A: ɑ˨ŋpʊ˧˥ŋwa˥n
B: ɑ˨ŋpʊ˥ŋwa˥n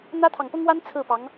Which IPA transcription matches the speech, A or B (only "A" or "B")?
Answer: B